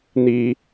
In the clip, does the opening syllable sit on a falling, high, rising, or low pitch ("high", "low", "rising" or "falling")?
high